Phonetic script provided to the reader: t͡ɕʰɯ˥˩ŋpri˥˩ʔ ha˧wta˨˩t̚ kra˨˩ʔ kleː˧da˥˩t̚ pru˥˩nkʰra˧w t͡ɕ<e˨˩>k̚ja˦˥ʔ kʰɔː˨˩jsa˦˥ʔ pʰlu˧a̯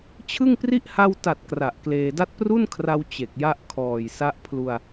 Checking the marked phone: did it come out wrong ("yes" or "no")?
no